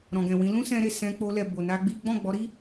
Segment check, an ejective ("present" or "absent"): absent